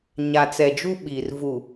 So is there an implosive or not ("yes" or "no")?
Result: yes